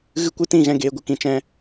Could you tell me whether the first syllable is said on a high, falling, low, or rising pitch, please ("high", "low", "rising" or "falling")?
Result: high